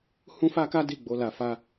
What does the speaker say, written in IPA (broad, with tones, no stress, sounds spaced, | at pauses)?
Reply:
h ũ˦ f a˦ k a˦ d i˦˨ ɡ͡b o˧ l a˨ f a˧